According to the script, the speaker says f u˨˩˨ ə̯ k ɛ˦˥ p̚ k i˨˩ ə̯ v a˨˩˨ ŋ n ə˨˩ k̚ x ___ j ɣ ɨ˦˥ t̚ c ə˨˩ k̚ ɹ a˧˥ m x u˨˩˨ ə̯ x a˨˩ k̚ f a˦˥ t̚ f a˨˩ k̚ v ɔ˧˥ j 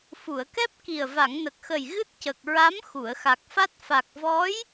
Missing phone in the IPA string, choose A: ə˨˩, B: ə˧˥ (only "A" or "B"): A